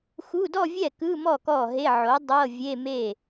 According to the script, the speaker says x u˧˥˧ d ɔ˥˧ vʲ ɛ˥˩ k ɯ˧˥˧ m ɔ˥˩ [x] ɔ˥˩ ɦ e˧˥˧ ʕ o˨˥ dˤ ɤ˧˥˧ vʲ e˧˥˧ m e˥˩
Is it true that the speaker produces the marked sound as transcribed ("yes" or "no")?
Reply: no